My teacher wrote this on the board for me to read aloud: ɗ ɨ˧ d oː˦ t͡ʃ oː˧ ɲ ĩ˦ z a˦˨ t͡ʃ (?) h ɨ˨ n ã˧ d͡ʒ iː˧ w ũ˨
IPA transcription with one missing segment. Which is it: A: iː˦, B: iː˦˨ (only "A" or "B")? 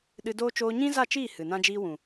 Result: B